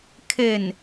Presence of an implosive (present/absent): absent